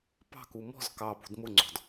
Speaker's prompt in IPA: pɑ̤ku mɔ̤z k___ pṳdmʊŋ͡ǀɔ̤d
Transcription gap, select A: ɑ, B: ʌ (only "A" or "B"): A